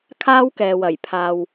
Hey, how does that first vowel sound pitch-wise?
high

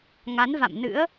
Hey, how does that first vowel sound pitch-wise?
rising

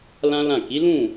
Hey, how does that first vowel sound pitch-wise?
high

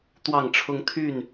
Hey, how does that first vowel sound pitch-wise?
falling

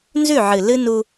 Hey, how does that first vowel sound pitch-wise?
falling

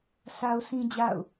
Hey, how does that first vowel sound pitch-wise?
high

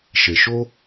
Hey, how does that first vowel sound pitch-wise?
low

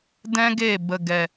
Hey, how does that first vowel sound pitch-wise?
high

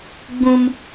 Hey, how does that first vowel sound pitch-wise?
high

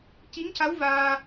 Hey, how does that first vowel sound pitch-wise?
rising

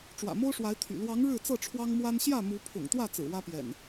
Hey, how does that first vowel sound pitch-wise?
low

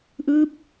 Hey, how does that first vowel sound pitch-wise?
rising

